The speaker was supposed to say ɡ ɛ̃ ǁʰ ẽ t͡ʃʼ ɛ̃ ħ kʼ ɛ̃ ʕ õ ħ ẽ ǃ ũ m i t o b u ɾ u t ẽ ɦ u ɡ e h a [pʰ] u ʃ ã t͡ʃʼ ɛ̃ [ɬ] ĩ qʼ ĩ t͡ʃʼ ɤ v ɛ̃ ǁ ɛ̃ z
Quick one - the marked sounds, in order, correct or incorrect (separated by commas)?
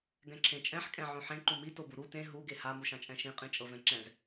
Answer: incorrect, incorrect